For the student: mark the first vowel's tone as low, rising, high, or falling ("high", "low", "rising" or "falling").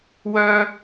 high